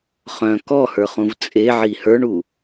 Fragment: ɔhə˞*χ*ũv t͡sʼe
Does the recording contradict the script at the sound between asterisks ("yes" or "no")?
no